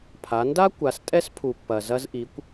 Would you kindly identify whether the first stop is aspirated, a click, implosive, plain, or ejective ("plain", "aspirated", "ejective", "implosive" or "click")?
aspirated